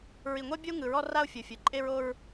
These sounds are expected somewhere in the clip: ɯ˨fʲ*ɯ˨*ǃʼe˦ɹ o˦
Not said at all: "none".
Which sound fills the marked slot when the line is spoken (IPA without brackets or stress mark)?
ɯ˨